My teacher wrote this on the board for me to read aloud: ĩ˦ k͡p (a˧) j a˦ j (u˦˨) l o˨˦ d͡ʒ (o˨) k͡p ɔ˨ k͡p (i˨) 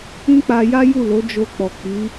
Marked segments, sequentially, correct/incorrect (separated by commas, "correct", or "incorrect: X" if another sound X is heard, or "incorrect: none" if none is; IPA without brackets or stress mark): correct, correct, incorrect: o˧, incorrect: i˨˦